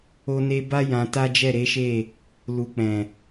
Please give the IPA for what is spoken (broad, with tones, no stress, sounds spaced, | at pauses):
o˦ n e˦ b a˦ j ã˧ t a˦ d͡ʒ ɛ˦˨ ɾ e˨˦ ʃ e˦˨ | l u˨ k͡p ɛ̃˨